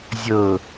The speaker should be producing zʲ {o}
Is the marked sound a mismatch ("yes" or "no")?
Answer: yes